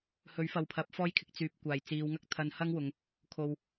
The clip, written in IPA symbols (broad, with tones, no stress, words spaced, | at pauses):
hɵ˨˥ɥfɐ˨wpʰɐ˨˥p̚ fɔː˥jkʰɪ˨˥k̚ t͡syː˨p̚kʷaː˨˩j t͡siː˨˧wŋɐ˥k̚t̪ʰɐ˧n hɐ˥ŋwʊ˨˧ŋ | kʰo˨w